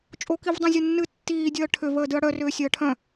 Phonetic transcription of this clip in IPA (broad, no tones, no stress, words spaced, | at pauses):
t͡ʃʼokivdˤõzʲə nːɨ tːiːdʲəː ʈʰʏ vəːdɨɐ̯ɽœrʏː sʲəːʈʰœ̃